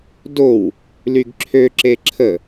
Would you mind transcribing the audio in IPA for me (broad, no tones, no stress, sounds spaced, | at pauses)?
d o w | l y ɡ ǁʰ ø ǁ e ǁʰ ə